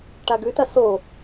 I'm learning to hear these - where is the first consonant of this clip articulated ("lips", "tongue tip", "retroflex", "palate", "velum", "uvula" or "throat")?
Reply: retroflex